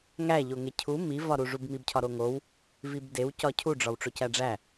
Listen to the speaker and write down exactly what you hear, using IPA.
ŋ æ ʎ o ŋ e cʰ u m i v ɒ ɾ u ʐ u b m i b cʰ ɒ ɾ o ŋ o w | v i b d e w c ɒ cʰ u ɖ͡ʐ ɒ w ʈ͡ʂ o c æ ɖ͡ʐ æ

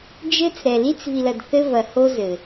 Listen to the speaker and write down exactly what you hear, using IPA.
d͡ʒ ɘ˦ t͡s ɾ ɛ˨ l i˦ t͡s v i˨ l ɐ˨ d θ ɘ˦ v ɐ˨ h o˦ z ɘ˨

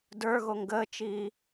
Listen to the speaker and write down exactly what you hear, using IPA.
d ə˞ ɣ o ŋ ɡ əː t͡ʃ iː

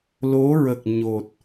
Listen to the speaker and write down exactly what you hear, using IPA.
l o˧˥ ɹ ə˨˩ k̚ ɲ o˨˩ t̚

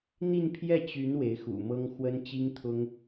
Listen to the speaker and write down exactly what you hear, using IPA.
n̪ i˥˧ n pʰ j ɛ˥˩ t͡ɕ y˧˥ n w e˧˥ ɪ̯ x ṵ˨˩ m ɤ˥ ŋ x w ə˥ n t͡ɕ i˥ ŋ t̪ʰ ʊ˥ ŋ

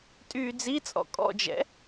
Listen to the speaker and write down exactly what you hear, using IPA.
tʼ yː d͡z i t͡sʼ ɔ̰ kʼ ɔ̰ d͡ʒ ɛ̰

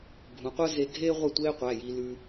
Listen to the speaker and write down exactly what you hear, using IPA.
ɡʱ ũ˩˧ qʷ əː˥ z e˧ ɡʱ eː˥ ʁʷ ɛ˥˨ tʷ eː˥ qʷ æ˩˧˩ j i˧ l ʉ˧

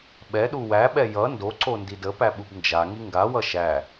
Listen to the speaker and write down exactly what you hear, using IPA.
ɓ ɛ ɗ u w æ ɓ ɛ j ʌ n d o ǀ o n d i d ə p æ ɓ u b n d͡ʒ a ŋ i ŋ ɡ a w ʌ ʃ æ

